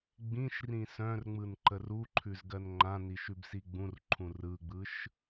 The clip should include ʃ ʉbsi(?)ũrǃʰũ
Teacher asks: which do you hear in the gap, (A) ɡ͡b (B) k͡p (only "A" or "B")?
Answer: A